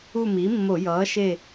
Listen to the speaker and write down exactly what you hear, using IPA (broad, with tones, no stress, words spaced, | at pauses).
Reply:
u˦˨mi˩˥mːo˧˩˧jʌː˩˥ ʃe˦˨